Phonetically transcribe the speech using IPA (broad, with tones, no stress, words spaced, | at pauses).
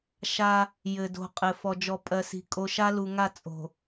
ʃa˦ | jɘ˨do̤˨qʼɘ˨ fɔ˨d͡ʒɔ˨pʼɜ˨si̤˨ kʼo˨ʃa˦lu˨ŋa˦˨ t͡sʼo̤˨